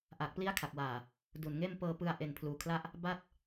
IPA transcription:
ʔ a˨˩ k̚ p l i˦˥ a̯ kʰ a˨˩ k̚ w aː˨˩ | d u˨˩ n ŋ eː˥˩ m p ɤː˧ p ɯ˧ a̯ ʔ e˨˩ n pʰ l uː˩˦ kʰ l a˦˥ ʔ | b a˥˩ t̚

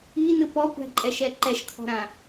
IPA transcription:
i n ɯ p ɔ kʷ æ̤ ǃʼ ɛ ʃ ɛ ǃ ɛ ʃ kʰ ɔ̤ ɾ ã

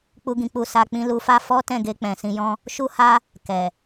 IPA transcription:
k͡p u˧ ɡ ĩ˨ k͡p u˧ s a˧ k͡p ĩ˧ l u˧ f a˦ f ɔ˦ t ɛ̃˦˨ ɡ e˧ k͡p ɛ̃˨ s ĩ˧ j ɔ̃˦ | ʃ u˦ h a˦ | k ɛ˨

